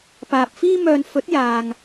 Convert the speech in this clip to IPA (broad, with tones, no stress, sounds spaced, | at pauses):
p aː˨ p̚ f iː˧ m œː˨ n f ɵ˨˥ t̚ j aː˨ ŋ